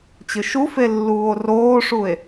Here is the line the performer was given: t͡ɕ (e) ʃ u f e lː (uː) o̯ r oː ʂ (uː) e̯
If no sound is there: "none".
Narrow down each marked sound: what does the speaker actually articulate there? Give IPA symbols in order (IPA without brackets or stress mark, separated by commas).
ɨ, uː, u